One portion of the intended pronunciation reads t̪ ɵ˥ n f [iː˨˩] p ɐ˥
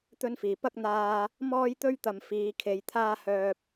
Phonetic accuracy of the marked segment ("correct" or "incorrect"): correct